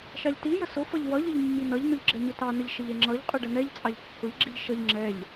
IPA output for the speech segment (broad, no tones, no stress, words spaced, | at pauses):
ʃɑʎtijə sʊfʌʎ wʌʎəʎ mːinʌʎnʊʎ ɡ͡ǁɛɲʊtɑnəʎ ʃəʎɛŋ͡ǁʌʎqʼʊ ɖənɛʎt͡sʼɑʎ kːʊʎɡ͡ǁiʎ ʃʌʎ ŋ͡ǁɛʎ